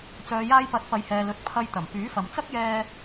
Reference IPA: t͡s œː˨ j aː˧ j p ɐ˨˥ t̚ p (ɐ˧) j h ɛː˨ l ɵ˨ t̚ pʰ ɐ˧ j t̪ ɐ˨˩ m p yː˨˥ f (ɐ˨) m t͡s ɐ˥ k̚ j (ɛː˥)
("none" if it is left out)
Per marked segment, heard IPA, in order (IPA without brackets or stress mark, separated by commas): ɐ˨˧, ɐ˨, ɛː˧